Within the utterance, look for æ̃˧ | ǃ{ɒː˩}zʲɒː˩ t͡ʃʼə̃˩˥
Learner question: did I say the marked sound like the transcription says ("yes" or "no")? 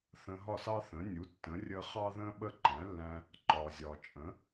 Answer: yes